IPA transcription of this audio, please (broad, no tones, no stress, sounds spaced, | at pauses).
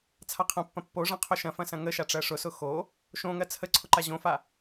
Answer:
t͡sʰ a qʰ ɐ̃ pː ɐ̃ pː o ʐ ɐ̃ qʰ o ʃ ɐ̃ f ɐ̃ s ɐ̃ ŋ ə ʃ a ʈ͡ʂ ɜ ʂ ʊ s ʊ x o | ʃ õ ŋ ɜ t͡sʰ ə ǀʰ ʊ ǃ a ʑ õ f a